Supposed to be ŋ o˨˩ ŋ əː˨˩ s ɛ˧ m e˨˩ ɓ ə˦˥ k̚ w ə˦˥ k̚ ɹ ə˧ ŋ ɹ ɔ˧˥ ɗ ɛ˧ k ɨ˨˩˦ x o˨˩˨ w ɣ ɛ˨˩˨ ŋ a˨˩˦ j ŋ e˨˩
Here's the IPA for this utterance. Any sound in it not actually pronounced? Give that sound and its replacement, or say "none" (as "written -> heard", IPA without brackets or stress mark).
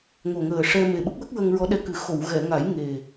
s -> ʂ